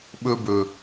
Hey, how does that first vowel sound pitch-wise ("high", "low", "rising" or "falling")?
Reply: high